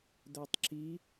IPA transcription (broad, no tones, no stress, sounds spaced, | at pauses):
d̪ ɛ tˤ ǁ i